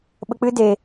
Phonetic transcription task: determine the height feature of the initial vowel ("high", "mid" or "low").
mid